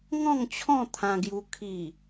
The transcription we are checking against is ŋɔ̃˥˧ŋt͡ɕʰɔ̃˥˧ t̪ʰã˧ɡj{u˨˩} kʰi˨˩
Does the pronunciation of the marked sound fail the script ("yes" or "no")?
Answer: yes